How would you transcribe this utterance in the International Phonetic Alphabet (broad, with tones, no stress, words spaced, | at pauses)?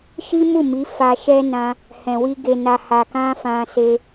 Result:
ʃi˦mu˦˨ mi˨˦fa˧ʃɛ˦ nã˧ | hɛ̃˨wi˧ ɡe˨na˨ ha˨kã˧ fã˧se˧